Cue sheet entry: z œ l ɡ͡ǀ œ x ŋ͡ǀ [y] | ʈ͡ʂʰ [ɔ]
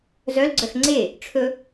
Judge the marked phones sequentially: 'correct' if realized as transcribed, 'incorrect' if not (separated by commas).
incorrect, incorrect